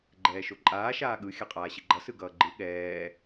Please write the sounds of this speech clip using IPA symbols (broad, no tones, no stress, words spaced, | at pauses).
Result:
ɡ͡ǃɛːʃoǃʼaː ʃaːɠɯ xʲaqʼaːɕiɡ͡ǃʌ sɯɡʌːɡ͡ǃɯ ɠɛː